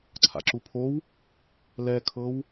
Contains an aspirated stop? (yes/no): yes